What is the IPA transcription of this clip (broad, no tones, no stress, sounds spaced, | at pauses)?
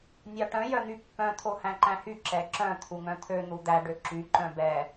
nʲ ɑ ʈ œ̃ j œ n̪ y pː œ̃ t̪ʰ o h æ̃ ǃ æ̃ h y ǁ ɛ ǁ œ̃ t̪ʰ u ŋ œ̃ t̪ʰ ø n̪ u d̪ æ ɖ ø ǁ y ǃ œ̃ b ɛ